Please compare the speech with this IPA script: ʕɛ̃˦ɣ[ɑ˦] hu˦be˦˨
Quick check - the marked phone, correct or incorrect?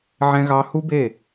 correct